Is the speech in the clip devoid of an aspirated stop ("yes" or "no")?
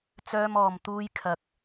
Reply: no